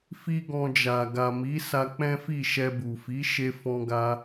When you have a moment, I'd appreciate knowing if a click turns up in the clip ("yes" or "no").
no